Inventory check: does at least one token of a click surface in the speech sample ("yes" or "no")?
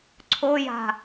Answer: yes